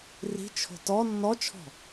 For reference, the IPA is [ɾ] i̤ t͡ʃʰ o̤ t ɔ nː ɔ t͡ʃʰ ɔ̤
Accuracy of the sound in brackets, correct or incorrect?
incorrect